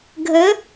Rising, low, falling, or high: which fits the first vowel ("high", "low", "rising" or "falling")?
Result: rising